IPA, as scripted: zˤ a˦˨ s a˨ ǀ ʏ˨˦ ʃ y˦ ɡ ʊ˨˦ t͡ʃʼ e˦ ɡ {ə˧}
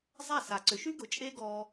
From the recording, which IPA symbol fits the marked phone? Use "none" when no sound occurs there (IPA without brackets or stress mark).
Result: ɔ˧